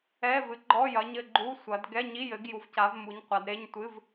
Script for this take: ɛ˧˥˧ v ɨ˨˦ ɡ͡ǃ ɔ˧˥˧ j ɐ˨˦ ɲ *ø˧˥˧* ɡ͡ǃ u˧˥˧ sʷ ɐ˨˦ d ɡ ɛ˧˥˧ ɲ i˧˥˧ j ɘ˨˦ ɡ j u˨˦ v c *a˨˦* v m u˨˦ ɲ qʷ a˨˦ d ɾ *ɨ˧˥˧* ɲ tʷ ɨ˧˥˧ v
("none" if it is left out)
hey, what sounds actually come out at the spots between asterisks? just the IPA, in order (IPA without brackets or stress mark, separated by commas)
ɘ˧˥˧, a˨˦, e˧˥˧